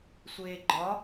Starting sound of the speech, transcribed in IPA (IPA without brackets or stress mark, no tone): sʷ